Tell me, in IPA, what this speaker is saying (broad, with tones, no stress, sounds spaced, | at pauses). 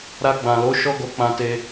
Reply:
ɾ a˧ ɡ͡b ã˨ l o˨˦ ʃ ɔ˦ ɡ o˧ k͡p ã˧ t e˧